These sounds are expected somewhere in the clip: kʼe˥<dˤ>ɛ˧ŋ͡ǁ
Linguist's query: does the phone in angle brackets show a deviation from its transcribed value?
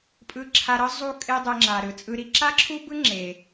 no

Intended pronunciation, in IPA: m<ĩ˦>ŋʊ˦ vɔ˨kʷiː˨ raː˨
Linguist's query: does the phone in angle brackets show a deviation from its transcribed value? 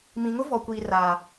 yes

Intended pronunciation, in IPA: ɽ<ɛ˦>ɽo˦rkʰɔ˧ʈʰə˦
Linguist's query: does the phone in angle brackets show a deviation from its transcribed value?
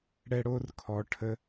no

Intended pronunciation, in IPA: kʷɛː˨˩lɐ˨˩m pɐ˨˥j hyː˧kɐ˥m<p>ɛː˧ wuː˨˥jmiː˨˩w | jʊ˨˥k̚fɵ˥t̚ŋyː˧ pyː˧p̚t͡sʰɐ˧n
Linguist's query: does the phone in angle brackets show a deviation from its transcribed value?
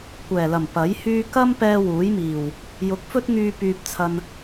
no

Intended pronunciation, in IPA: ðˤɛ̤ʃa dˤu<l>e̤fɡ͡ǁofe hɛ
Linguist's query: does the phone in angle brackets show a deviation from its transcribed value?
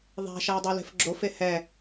no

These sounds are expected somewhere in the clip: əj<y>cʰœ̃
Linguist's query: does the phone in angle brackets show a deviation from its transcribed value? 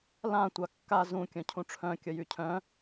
no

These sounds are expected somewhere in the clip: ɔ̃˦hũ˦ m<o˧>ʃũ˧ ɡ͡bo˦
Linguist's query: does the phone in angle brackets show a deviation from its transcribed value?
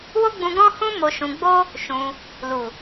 no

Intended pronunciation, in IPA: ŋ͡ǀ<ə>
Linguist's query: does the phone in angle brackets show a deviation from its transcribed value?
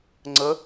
no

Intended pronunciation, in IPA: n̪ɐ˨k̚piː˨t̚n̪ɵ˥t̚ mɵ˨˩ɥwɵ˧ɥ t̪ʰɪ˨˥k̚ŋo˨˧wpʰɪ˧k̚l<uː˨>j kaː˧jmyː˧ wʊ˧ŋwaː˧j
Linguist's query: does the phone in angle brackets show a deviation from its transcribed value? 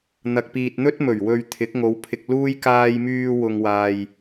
yes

